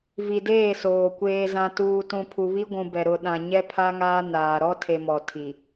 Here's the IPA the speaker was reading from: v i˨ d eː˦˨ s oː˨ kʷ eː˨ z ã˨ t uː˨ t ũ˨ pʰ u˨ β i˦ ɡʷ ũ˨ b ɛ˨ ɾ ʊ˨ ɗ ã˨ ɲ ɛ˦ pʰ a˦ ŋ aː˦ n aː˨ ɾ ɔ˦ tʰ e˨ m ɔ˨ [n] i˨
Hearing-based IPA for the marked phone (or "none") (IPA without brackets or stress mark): tʰ